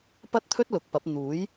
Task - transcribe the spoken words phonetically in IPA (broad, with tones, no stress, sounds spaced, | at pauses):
p ɐ˥ t̚ t̪ʰ ɵ˥ t̚ l ʊ˨˥ k̚ p ɐ˨˥ p̚ n̪ uː˨˥ j